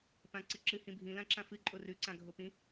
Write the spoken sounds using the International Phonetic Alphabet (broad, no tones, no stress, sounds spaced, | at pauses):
p ã ǀ ɨ ǁ ɨ h ĩ bʱ ĩ l ã ǁ ã f ɨ ǃʼ o r ʉ ǀ ã ɡʱ o p ĩ